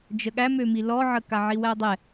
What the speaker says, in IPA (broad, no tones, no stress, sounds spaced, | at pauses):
d͡ʒ ə ɠ æ m ø m i l ɔ ʕ ə k a ʕ i w æ dˤ ɛ